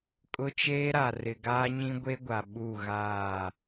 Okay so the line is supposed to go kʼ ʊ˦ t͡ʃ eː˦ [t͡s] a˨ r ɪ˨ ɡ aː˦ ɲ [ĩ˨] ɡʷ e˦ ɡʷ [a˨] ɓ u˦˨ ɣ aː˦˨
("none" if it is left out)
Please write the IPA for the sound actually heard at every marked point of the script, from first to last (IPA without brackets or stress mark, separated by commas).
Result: ɾ, ĩ˦, a˨